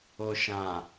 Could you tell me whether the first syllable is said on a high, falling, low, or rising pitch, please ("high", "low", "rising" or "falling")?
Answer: low